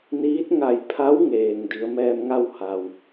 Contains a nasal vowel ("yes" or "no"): no